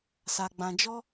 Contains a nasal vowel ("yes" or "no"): yes